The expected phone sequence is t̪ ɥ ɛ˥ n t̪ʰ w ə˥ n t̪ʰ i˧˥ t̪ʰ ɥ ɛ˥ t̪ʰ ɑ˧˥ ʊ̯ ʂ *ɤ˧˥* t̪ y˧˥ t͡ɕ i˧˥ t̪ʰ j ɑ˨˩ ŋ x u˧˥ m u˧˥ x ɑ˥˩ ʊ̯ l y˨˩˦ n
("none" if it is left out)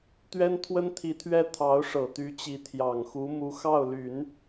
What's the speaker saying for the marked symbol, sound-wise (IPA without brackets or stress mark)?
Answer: ɤ˨˩